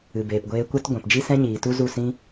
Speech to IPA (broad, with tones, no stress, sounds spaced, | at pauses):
ɨ˨ b eː˨ p ɡʷ eː˧ kʷ ɛ˦ t ɡʷ ɛ̃˨ p d͡ʒ i˦ s ɛ̃˦ ɲ iː˨ t u˦ z u˦˨ s ĩ˦